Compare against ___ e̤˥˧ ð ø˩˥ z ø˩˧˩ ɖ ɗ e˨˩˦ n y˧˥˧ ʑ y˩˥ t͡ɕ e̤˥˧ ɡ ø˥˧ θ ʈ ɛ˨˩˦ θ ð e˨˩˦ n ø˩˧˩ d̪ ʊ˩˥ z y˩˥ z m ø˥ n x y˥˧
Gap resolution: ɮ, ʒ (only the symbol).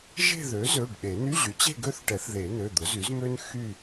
ʒ